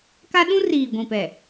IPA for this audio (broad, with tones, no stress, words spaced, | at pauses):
ka˦ɗũ˦riː˨ ɡʷĩ˨pɛ˨